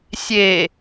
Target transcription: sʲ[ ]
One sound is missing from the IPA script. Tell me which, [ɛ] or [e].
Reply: e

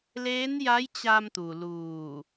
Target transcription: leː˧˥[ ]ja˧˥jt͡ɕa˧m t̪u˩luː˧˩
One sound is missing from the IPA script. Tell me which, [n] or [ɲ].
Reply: n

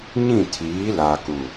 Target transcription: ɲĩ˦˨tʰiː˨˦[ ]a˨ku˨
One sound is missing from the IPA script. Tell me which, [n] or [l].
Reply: l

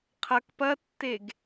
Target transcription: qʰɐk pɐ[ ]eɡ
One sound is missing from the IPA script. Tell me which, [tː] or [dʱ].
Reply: tː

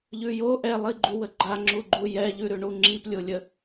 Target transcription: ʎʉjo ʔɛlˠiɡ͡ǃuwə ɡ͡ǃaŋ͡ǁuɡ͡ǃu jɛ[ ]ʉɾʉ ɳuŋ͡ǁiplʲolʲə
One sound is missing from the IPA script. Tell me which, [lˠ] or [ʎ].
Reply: ʎ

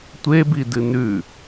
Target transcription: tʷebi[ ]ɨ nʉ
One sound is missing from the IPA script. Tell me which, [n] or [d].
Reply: d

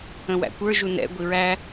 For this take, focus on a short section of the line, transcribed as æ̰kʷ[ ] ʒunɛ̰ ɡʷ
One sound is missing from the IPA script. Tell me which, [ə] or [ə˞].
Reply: ə˞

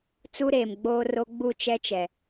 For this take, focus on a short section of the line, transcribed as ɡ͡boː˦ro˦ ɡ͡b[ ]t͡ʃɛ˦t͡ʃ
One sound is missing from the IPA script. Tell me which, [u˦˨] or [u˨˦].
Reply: u˦˨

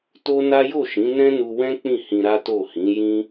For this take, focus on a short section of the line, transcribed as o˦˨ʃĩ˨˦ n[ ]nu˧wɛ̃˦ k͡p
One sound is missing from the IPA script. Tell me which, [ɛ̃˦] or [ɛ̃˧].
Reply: ɛ̃˦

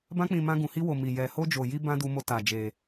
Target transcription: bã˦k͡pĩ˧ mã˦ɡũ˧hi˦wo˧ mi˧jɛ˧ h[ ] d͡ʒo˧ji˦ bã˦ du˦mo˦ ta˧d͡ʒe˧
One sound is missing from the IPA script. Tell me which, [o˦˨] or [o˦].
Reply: o˦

